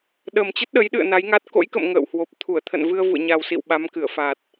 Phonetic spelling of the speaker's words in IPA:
ɗ ə˨˩ m t͡ɕ ə˦˥ t̚ ɗ ə˨˦ j ɗ ɨ̰˧˨ ə̯ n a˨˦ j ŋ a˦˥ t̚ k o̰˧˥ j k ə̰˧˨ m ŋ ə̰ː˧˨ w h w o˨˩ p̚ t̪ʰ u˧˩ ə̯ t̪ʰ ə̰˧˨ n v ɨ˧ ə̯ v ṵ˧˨ ə̯ ɲ a˨˩ w s ḭ˧˨ w ɓ a˨˦ m k ɨ˧˩ ə̯ f a˨˩ t̚

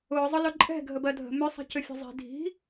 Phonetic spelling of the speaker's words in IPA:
ʊː zˤ ʊ l ʊ ǃʼ ɛ̤ ɡʱ ə b ɜ dʱ ə̤ m ʏ sˤ i̤ c ʏ fʲ ə̤ zˤ i̤ dʱ i̤

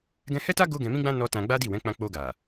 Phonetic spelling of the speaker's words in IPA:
ɡ ɛ̃˧ h ɛ˦ t a˦ ɡ o˦ ɡ ɛ̃˧ m ĩ˦ ɡ͡b ã˦ n ɔ˦ t ã˧ ɡ͡b a˦ d i˦˨ w ɛ̃˨˦ k͡p ã˧ k͡p o˧ ɡ a˨

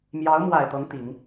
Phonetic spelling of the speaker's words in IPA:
m j ɑ˧˥ ʊ̯ m w a˨˩ ɪ̯ t̪ ɤ˧˥ ŋ t̪ i˨˩˦ ŋ

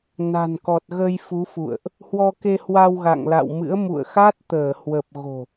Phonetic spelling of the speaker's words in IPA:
n a̤˨˩ n k ɔ˨˩ t̚ ɣ ə˧ j f u˨˦ f ṵ˧˨ ə̯ ʔ | h w ɔ˧ k e˧ h w a˧ w ɣ a̰˧˨ ŋ l a̰˧˨ w m ɨ̰˧˥ ə̯ m ṵ˧˨ ə̯ x a˦˥ t̚ t̪ əː˧˩ h w ə˨˩ p̚ ɣ o̤˨˩

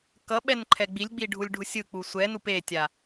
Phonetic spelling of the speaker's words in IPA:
k ʌ ɓ ɛ n ǃʰ ɛ ɡ͡b i lʲ ɡ͡b i ɖʱ u lʲ ɖʱ u sʲ ɯ k͡p u sʷ ɛ n u p e tʲ a

